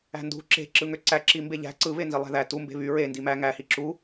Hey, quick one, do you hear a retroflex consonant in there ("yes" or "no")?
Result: no